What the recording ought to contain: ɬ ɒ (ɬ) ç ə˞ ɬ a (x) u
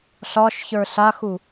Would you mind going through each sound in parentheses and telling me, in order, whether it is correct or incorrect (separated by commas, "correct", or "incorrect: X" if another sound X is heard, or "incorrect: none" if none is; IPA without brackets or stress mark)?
incorrect: ʃ, correct